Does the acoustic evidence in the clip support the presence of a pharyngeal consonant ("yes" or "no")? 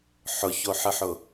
yes